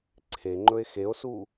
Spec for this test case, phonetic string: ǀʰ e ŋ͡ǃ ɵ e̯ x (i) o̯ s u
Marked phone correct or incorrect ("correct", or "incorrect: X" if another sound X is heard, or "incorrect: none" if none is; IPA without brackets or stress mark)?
incorrect: e